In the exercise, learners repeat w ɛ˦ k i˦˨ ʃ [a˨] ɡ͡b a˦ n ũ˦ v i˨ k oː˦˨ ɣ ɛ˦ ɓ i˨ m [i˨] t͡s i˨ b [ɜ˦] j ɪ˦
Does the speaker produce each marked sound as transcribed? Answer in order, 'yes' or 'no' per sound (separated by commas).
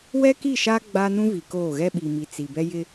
no, yes, no